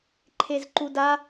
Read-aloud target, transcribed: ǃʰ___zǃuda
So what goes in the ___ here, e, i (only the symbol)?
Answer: e